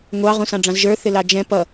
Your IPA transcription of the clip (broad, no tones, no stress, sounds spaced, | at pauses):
ŋʷ ɑ ʁ ũ s ɑ̃ ɖ͡ʐ ɑ̃ z ʒ ə˞ θ ɪ l ɑ d͡ʒ ɛ̃ p ʌ